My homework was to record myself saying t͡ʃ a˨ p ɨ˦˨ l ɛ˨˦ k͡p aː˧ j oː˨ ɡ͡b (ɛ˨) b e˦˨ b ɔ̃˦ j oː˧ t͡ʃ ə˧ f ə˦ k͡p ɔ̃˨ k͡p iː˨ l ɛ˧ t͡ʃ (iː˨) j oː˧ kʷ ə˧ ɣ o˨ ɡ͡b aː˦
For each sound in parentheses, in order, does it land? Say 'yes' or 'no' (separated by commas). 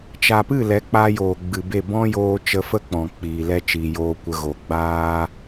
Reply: no, yes